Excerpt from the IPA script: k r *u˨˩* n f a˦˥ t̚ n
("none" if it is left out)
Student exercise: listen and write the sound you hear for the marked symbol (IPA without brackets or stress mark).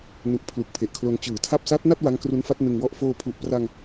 u˦˥